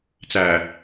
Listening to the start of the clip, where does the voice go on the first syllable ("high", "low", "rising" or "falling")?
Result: low